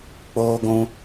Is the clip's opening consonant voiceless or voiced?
voiceless